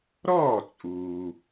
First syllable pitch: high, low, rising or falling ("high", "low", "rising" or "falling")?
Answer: falling